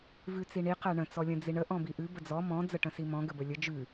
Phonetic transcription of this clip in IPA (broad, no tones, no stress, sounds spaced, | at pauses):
v ʉ t͡s i ɳ i q æ ɳ ə̃ t͡s ɔ lʲ ə̃ d͡z i ɳ ə ʔ ɔ̃ b i ʔ ʉ b ə d͡z ɔ m ɔ̃ d͡z ə ʈ ə̃ s i m ɔ̃ ɡ ə b ə lʲ ə d͡ʒ ʉ